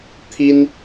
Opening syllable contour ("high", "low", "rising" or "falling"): high